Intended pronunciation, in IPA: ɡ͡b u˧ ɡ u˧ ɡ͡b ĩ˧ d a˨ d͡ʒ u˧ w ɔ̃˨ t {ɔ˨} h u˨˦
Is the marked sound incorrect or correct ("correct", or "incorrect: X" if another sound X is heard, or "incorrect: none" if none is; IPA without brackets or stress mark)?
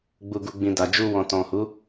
incorrect: ɔ̃˨